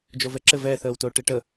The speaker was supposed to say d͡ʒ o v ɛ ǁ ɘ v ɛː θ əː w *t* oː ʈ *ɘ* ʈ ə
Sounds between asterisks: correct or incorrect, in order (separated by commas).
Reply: correct, incorrect